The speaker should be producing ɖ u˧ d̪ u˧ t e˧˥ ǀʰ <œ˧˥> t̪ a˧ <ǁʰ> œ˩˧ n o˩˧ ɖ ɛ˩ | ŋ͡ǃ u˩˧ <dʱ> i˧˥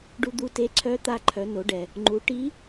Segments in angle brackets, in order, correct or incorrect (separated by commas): correct, incorrect, incorrect